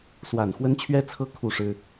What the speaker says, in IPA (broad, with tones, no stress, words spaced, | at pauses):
swa˨˩nxwə˦nt͡ɕʰɥɛ˦t͡sʰɤ˦ kʰu˥˨ʂɻ̩˦